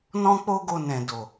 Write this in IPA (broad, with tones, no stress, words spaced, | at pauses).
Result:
nɔ̃˦k͡po˦ɡo˧ nɛ̃˨ do˨